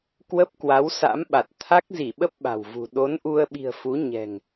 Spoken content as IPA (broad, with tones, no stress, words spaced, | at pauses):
kwə˦˥p̚kwa˨˦wsa̰˧˥m ɓa˨˩t̚ t̪ʰa˦˥k̚zi˧˩ɓə˦˥p̚ ɓa̤˨˩wvṳ˨˩ ɗo˨˦nʔu˧ə̯ɓi̤˨˩ə̯fu˨˦ ɲɛ̤˨˩ŋ